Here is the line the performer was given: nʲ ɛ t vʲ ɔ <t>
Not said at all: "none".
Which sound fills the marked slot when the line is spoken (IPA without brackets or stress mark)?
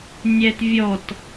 t